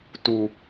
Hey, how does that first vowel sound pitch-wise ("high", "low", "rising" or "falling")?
low